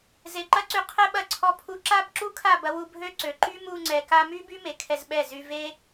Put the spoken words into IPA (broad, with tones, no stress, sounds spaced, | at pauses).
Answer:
z e˨ ǃ ɐ˦ ǀ y˧ qʰ ɛ˦ ɓ ɐ˧ ǀʰ ɔ˧ pʰ u˧ ǁ a˦ b ǁ u˦ kʰ a˦˨ b ɐ˧ w u˧ bʱ ø˧ ǀ ø˨ ǃ y˦ m u˧ ŋ͡ǀ ɛ˨ k a˧ m y˦ b y˦ m e˨ kʰ ɛ˧ z ɓ ɛ˦˨ z y˧ v e˦